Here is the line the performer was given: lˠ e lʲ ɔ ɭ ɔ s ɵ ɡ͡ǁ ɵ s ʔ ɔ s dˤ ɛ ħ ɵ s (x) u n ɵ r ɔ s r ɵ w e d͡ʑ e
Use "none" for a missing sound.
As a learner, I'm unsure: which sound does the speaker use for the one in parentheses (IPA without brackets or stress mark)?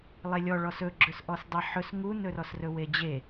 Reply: ŋ